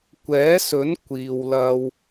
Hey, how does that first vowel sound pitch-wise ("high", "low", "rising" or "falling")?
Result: rising